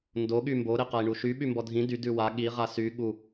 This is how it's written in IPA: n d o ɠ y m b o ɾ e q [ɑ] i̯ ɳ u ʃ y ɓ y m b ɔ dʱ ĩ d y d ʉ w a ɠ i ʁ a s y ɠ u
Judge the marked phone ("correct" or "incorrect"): incorrect